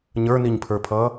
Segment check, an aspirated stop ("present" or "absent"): present